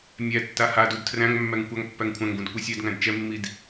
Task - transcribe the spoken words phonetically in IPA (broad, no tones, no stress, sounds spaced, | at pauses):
mʲ æ tː a h a d u d tʰ r æ̃ ŋ mː æ ŋ kʷ a ŋ pː æ ŋ kʷʰ æ̃ ŋ ɡ ũ d kʷ e sʲ ɛ d ŋ æ̃ d t͡ʃ ɛ mː i d